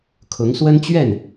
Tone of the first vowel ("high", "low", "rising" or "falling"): rising